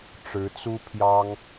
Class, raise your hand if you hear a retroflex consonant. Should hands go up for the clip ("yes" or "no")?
yes